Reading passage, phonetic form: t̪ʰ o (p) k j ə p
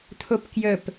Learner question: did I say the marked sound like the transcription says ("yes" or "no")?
yes